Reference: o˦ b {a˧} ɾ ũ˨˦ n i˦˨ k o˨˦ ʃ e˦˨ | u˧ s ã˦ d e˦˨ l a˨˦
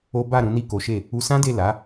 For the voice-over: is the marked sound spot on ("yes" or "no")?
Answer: no